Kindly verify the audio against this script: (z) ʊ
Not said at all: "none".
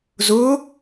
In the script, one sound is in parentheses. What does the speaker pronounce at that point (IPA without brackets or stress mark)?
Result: z